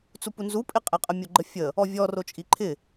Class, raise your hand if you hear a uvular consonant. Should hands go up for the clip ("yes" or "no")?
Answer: yes